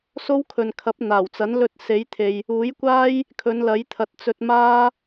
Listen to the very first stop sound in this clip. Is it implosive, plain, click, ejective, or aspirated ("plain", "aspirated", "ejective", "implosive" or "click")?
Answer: aspirated